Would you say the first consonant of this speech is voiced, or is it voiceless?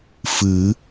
voiceless